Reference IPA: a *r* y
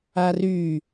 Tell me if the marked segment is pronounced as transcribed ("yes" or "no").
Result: yes